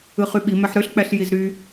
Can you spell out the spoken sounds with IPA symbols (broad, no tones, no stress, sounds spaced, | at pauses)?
ɯ χ y ɓ i m æ ħ ɾ ø ɬ k͡p æ ɬ j i z ɾ y